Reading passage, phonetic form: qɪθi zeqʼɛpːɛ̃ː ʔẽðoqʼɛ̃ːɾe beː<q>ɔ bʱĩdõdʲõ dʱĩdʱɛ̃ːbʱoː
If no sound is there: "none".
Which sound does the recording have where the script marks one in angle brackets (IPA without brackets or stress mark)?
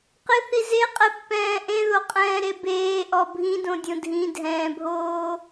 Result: ʔ